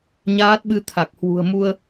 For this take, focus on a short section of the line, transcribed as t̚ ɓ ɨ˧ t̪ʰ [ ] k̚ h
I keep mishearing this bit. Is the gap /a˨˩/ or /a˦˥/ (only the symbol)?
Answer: a˨˩